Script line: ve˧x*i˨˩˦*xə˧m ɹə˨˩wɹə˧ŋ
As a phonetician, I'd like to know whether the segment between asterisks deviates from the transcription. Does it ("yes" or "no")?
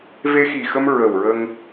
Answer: yes